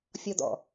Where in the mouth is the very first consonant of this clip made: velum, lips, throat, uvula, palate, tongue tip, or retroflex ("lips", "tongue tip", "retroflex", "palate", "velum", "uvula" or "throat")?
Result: lips